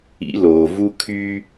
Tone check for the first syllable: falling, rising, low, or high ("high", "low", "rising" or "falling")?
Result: rising